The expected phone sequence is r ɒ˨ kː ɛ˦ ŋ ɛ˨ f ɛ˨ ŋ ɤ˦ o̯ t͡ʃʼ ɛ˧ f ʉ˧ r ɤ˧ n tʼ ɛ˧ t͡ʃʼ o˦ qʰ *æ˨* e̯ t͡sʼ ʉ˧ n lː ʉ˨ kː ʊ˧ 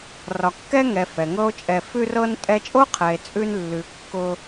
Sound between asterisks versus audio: incorrect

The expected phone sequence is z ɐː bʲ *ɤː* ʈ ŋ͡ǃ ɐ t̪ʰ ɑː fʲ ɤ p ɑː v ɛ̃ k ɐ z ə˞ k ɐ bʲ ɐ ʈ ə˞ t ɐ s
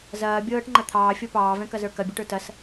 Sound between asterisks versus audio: correct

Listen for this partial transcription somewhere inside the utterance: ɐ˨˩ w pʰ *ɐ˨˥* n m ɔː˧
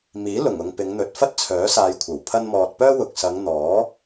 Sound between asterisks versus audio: incorrect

